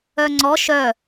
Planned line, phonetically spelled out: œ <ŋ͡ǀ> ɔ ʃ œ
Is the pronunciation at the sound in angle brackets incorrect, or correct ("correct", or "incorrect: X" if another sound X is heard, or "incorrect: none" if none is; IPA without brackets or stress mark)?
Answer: correct